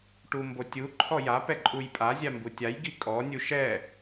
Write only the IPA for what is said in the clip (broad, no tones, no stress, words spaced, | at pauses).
ʈumbotʲu ǃʰɔja pɛǃʼujpʼa zʲambutʲaj ɡikʼɔ nʲuʃɛ